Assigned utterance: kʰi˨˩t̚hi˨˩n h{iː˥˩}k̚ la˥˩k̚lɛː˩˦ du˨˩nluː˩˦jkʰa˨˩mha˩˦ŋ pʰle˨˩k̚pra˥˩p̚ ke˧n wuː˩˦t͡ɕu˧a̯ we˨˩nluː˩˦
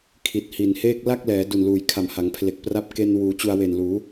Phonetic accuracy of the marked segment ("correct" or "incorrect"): incorrect